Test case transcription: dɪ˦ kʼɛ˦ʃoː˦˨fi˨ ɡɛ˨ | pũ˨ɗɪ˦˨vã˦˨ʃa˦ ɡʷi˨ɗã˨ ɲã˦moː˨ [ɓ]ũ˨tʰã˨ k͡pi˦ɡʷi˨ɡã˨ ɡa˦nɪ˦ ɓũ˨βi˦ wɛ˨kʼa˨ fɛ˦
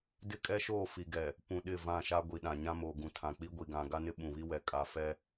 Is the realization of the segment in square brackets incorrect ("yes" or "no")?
yes